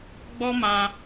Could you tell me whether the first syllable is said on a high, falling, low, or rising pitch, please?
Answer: high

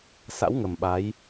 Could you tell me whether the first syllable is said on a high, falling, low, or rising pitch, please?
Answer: rising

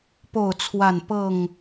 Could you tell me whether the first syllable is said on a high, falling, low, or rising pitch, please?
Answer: falling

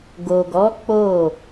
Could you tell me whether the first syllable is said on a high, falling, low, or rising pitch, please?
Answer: low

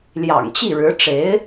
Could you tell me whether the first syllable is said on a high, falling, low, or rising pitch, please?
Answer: low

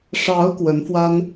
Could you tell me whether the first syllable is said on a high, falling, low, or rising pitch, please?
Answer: rising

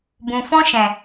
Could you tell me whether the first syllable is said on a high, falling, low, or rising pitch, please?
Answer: low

